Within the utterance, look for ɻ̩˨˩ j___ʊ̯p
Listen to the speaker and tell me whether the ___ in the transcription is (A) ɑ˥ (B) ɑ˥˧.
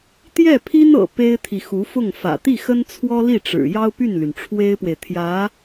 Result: A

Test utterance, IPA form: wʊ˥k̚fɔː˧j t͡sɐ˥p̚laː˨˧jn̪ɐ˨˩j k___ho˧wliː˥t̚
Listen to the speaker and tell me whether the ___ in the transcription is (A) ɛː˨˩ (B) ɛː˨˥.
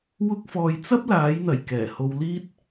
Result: A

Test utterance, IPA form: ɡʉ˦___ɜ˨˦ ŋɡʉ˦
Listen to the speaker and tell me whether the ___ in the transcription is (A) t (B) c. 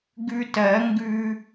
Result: A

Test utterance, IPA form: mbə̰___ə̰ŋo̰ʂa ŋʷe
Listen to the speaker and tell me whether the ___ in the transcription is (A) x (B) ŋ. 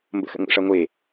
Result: A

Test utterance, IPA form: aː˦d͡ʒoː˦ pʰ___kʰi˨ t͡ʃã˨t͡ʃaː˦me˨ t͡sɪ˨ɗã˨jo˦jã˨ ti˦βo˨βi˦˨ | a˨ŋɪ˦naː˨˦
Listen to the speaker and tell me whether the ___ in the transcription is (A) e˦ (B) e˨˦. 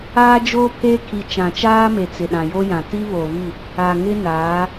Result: A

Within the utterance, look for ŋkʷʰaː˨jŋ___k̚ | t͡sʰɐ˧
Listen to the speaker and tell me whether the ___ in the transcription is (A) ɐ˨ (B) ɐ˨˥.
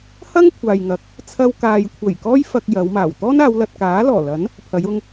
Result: B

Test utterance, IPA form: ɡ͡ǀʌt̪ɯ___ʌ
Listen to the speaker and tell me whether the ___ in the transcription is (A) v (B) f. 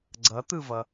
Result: A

